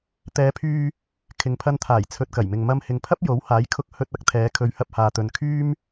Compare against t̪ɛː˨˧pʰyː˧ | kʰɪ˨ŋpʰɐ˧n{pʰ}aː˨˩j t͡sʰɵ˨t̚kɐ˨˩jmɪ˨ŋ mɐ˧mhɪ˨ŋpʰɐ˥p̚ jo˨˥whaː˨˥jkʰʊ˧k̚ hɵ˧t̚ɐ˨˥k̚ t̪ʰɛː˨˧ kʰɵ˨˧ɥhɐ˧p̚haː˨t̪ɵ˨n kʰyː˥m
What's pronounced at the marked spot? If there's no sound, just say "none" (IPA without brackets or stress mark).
t̪ʰ